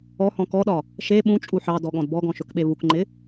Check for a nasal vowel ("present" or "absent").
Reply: present